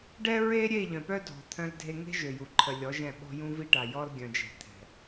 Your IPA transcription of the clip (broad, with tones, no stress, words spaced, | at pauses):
ɖɛ˦ɹe˦ɾʲe˦˨ ʎœ̃˨pœ˦dʱɔ̤˨ t̪ʰœ̃˦ldʱe˦ ŋe̤˦ʒø˨ju˨ ǃʰə˨lʲɔ˨˦ ʒɛ̃˦˨ɓɔ̤˦jũ˦ vi˦ʈa˨ jɔ˦lɡʲœ̃˨d͡ʒɛ̤˨ t̪ʰɛ̤˨